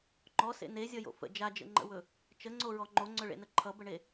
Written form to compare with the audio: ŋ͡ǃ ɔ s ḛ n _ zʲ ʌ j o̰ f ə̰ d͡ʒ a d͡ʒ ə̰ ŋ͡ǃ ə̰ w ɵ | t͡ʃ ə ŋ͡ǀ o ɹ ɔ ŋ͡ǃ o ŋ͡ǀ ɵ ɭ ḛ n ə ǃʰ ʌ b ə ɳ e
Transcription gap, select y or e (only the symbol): e